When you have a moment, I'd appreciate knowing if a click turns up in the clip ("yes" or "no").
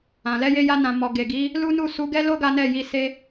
no